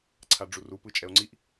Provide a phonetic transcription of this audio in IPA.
ǀʰ a ɖ͡ʐ u r u p ɯ t͡ʃʼ ɛ o̯ ŋ͡ǀ i ʔ

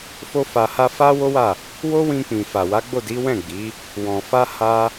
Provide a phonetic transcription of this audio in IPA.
f o˦ f a˧ h a˦ f a˦ w o˦ w a˦˨ | w o˦ w ĩ˧ k͡p ĩ˨ f a˨ w a˨˦ ɡ͡b o˦˨ d i˨˦ w ɛ̃˦˨ ɡ͡b i˨˦ | w ɔ̃˨ f a˧ h a˧

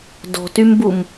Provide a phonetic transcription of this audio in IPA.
d ɔ̤ t y m b u m

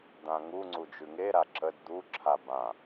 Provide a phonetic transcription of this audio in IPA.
d̪ ã ŋ u ŋ͡ǀ u d͡ʒ ʉ ŋ e ɾ a ǁ ə d d̪ u ǁʰ a b ã

